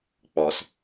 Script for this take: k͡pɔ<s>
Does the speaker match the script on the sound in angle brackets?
yes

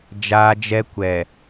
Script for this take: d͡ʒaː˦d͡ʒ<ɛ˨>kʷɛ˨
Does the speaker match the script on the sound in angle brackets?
no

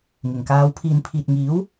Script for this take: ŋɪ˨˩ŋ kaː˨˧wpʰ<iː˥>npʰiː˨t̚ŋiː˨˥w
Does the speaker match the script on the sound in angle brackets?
no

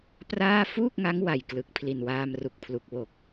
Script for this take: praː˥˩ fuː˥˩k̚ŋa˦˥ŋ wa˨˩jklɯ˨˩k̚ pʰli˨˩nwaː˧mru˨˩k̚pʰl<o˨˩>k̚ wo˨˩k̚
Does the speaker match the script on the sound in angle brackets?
no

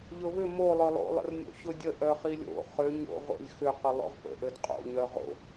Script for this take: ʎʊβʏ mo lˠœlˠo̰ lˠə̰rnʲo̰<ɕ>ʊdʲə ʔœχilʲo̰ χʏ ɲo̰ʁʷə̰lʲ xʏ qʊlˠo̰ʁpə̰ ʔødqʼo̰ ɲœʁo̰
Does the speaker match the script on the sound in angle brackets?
yes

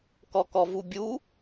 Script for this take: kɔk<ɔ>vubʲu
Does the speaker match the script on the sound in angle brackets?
yes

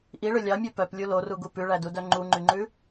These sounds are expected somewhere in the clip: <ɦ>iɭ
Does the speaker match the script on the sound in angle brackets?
no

